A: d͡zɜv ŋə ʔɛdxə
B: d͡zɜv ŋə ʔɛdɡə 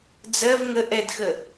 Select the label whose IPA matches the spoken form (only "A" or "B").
A